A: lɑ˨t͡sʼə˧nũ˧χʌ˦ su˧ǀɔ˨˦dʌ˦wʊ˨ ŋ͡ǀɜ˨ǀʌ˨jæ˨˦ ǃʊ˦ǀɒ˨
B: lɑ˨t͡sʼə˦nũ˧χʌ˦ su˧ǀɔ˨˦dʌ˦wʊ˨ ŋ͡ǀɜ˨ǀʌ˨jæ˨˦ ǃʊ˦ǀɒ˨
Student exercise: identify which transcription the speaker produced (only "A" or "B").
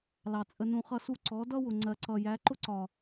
A